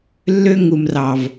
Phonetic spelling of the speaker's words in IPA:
lː ø˦ ŋ u˨ m r ɑ˨ v

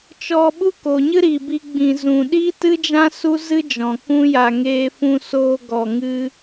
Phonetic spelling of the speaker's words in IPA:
t͡ʃ ɔ˧ ɓ u˦ k o˨ ɲ ɨ˦ ɾ iː˨ b i˦ ɡ͡b ĩ˧ z ũ˧ ɗ iː˦ t ɨ˦ d͡ʒ ã˦ s u˦ z ɨ˦ d͡ʒ ɔ̃˨ k ũ˦ j a˧ ŋ eː˧ f ũ˧ s oː˧ ɡ ɔ˧ ŋ ɨ˦

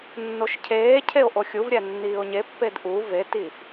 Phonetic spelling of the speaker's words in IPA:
nː o ʃ cʰ eː cʰ e o̯ ʔ o xʲ u v ɾʲ æ nː iː o̯ ɲ e pː e d ʔ u v e t i f

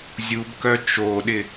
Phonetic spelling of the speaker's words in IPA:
zʲ u b k œ t͡ʃ o ɗ ɪ

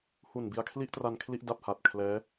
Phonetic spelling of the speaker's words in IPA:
h u˨˩ n b i˧ a̯ kʰ l i˥˩ ʔ t r a˧ n kʰ l i˥˩ ʔ d a˨˩ p̚ h a˨˩ t̚ kʰ l ɛː˦˥

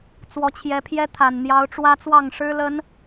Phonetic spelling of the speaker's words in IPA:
t͡s w ɔ˨˦ t͡ɕʰ j ɛ˨˦ pʰ j ɛ˦ t̪ʰ a˨˩ n n̪ j ɑ˨˦ ʊ̯ ʈ͡ʂ w ä˦ t͡s w ɑ˥˨ ŋ ʂ ɻ̩˦ l ə˨˦ n

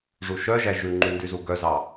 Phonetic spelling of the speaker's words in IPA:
ʐ u ʃ œ ʒ æ ʒ ʉ ŋ͡ǃ y n d y z u ɡ œ z ɑ

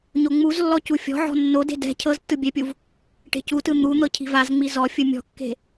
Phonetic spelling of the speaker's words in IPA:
ɲ o ŋ͡m u z lː ɔ c u fʲ ɔ̤ ʕ ɔ̤ nː o d e̤ d ɛ̤ cʰ ɤ z tː ɯ bʲ ɛ pʲ u v | ʈ e̤ c u t ɯ n̪ u n̪ ɤ cʰ i̤ v a z ŋ͡m i z ɔ fʲ ɯ mʲ ɔ̤ kː e̤

